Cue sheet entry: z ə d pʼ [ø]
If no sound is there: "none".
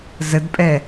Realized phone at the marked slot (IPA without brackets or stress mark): ɛ